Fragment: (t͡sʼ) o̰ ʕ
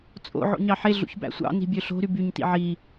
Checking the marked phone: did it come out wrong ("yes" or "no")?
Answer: no